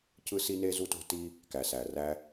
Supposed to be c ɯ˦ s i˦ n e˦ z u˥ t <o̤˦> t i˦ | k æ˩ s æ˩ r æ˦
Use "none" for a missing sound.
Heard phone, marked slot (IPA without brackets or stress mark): o̤˦